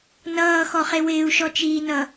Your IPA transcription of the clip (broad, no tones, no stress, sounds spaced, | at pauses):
n ʌː x ɔ χ e w ɪː u̯ ʃ ɔ t͡ʃ iː n ʌ